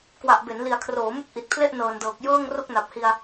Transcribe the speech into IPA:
k w a˨˩ ʔ b e˩˦ n l i˨˩ a̯ kʰ r oː˩˦ m u˦˥ k̚ ʔ i˨˩ t̚ pʰ l e˥˩ ʔ n ɤː˨˩ n d ɤː˨˩ k̚ j ɤː˥˩ ŋ r o˥˩ k̚ n a˨˩ p̚ h i˧ a̯

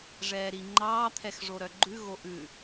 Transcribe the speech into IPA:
ʐ ɛː ɾ i ŋ͡ǃ ɑː t̪ʰ ɛ x ʐ o ɾ œ ɡ͡ǃ ʉ ɣ o ʔ ʉ

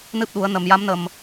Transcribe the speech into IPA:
n ɨ˦˥ p̚ ɗ u˨˩˦ ə̯ n ə˨˩ m j a˧˥ m n ə˨˩ m

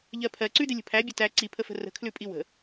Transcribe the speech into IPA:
ʎ ɜ pʰ ɜ ǀ ʉ d ɪ lʲ ə̤ pʰ æ bʲ ə t æ ǀ i pʰ ə f ə̤ r ə̤ kʰ l ʉ pʼ i w ə̤

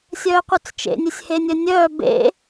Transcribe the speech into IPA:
sʲ œː qʷ œ t͡s t͡ʃ ḛ nʲ e sʲ h e nʲ œ nʲ œː b ḛ

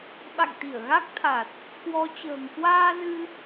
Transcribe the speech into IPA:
ɓ a̰˧˨ ŋ t̪ i˧˩ ə̯ ɣ a˦˥ k̚ t̪ʰ a˨˩ t̚ | k w ɔ˨˦ t͡ɕ ə̤ː˨˩ ŋ k w aː˧ z ɨ˧

